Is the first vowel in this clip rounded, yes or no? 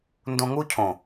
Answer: yes